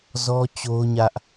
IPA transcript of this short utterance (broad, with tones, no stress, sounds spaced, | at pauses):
z ɔ˦ t͡ɕ o˦ ʊ̯ ɲ ä˦ ʔ